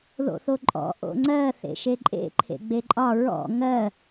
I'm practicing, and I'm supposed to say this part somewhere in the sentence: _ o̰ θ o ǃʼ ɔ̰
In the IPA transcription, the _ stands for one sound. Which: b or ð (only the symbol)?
ð